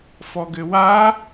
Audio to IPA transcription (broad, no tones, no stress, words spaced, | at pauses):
fɔɡɘwa